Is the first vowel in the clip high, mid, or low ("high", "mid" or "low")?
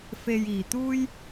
mid